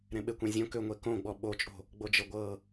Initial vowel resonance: nasal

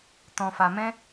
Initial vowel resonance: nasal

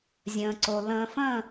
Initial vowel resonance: nasal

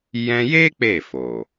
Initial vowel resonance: nasal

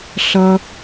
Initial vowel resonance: oral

